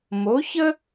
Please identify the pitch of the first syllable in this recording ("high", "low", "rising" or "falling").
rising